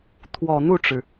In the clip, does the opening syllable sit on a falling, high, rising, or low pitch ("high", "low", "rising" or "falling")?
low